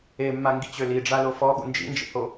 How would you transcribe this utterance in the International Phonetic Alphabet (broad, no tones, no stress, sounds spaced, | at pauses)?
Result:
e mː a ŋ ɡ i t͡ɕ ø l i ɖ͡ʐ a l o f ɔ ɠ ṵ n d͡ʒ ḭ n d͡ʒ ḭ h o